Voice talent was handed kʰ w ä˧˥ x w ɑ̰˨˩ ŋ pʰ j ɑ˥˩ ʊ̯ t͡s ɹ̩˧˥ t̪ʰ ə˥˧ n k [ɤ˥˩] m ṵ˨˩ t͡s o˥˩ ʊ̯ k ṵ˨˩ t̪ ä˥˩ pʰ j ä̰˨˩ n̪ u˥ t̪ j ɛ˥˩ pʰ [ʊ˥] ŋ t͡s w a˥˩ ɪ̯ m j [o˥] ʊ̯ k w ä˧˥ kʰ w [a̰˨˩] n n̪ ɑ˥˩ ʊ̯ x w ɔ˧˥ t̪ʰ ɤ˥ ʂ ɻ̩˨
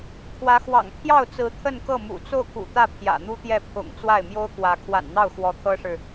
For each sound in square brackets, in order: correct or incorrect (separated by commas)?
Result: correct, incorrect, correct, correct